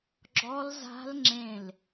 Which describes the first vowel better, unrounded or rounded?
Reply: rounded